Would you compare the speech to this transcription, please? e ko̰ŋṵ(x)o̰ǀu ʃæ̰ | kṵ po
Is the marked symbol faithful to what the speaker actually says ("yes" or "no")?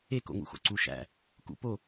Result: yes